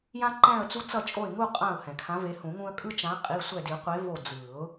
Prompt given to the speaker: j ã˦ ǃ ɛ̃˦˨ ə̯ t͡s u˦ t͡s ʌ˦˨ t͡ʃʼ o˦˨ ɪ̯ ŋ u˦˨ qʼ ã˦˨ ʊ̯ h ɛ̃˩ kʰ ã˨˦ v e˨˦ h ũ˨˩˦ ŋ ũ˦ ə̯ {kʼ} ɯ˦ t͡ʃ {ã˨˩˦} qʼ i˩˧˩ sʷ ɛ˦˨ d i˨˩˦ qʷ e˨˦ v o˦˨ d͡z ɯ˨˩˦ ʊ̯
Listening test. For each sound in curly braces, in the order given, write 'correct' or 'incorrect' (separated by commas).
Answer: correct, incorrect